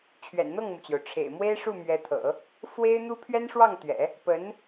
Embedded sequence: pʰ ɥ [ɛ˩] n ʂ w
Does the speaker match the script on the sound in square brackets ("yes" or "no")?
no